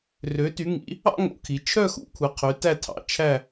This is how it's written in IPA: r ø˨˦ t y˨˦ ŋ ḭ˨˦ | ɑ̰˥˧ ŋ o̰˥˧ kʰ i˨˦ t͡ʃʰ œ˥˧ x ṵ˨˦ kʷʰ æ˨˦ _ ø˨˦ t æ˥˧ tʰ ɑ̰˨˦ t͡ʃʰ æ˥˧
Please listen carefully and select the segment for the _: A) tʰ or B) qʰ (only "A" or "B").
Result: B